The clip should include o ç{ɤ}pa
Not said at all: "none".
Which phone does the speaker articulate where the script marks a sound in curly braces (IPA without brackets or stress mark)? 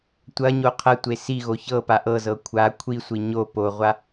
ɤ